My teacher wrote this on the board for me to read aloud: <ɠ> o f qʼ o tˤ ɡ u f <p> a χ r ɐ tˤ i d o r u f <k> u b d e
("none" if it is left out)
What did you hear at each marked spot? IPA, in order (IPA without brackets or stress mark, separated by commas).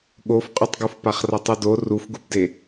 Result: ɠ, p, ɡ